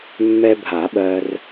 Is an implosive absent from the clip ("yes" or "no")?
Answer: no